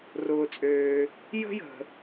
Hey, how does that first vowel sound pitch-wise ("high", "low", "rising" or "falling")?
low